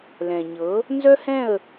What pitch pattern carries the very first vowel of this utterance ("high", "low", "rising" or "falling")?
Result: low